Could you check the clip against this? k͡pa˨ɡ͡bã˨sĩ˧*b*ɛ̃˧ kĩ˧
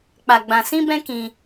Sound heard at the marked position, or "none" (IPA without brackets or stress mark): b